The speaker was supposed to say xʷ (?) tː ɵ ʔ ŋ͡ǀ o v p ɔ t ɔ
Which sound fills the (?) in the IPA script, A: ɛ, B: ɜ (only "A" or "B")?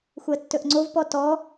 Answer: B